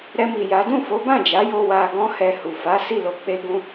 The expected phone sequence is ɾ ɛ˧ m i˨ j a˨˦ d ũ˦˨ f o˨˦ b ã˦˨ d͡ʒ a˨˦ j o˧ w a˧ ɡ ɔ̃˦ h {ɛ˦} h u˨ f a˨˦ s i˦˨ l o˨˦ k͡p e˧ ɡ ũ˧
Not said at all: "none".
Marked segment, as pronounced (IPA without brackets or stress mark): ɛ˧